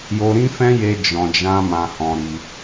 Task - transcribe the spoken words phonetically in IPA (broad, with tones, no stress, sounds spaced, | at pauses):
j o˧ ɾ ĩ˦ f ɛ̃˦ j e˧ d͡ʒ ɔ̃˧ d͡ʒ ã˦ m ã˧ h ɔ̃˧ ɾ i˧